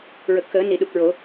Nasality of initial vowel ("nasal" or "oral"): oral